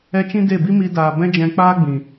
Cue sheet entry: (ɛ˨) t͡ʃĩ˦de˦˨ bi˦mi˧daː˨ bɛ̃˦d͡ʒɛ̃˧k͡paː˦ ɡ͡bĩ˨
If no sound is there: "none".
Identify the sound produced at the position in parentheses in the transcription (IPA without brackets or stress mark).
ɛ˧